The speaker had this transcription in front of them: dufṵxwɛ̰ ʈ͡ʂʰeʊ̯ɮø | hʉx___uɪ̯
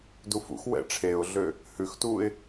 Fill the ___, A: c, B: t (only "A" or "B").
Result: B